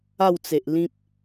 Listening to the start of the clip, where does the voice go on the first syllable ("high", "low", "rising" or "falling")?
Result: falling